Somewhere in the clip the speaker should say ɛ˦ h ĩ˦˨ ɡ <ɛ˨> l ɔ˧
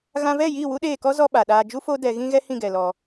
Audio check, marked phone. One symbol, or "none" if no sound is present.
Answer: ɛ˨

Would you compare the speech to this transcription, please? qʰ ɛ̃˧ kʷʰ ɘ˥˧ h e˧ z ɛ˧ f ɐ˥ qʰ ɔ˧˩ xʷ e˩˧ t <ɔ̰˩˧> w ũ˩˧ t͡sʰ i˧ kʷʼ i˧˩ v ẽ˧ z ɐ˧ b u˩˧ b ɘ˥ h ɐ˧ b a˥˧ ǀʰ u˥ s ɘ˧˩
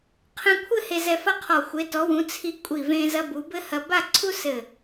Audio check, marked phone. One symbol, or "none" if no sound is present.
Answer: ɔ˩˧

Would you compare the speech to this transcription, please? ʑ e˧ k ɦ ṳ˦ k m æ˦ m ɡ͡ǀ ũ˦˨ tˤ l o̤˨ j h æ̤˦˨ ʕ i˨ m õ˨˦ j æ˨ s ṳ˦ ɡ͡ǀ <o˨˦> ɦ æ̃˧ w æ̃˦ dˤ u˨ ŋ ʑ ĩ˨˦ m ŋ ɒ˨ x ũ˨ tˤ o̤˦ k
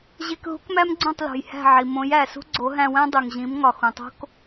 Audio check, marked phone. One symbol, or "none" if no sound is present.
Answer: o˨˦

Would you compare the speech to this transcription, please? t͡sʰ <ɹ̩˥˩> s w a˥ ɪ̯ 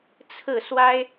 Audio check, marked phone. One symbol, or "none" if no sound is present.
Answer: ɹ̩˥˩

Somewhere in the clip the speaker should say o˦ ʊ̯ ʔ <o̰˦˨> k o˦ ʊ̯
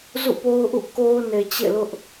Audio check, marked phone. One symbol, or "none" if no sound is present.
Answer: ṵ˦˨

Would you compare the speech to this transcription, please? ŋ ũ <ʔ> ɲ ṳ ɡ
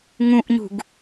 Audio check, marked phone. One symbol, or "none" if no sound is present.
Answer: ʔ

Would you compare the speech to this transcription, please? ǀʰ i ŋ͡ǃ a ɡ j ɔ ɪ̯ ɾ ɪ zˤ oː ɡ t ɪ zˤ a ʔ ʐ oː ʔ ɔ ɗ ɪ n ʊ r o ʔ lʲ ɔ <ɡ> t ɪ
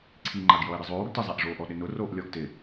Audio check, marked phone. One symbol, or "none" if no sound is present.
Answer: ɡ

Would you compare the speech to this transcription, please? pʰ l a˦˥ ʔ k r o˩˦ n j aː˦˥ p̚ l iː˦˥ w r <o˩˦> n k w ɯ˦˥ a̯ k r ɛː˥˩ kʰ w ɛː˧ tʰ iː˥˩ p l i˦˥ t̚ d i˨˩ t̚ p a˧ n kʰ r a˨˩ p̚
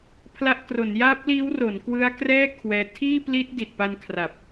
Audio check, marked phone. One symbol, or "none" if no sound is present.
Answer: o˩˦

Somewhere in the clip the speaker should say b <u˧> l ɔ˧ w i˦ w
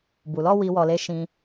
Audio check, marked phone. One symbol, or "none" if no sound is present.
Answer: u˨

